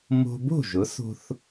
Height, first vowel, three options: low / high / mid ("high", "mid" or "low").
mid